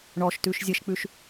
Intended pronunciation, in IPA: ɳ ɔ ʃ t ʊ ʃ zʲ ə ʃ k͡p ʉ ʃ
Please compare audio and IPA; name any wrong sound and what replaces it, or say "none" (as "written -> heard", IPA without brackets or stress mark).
ʊ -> ʉ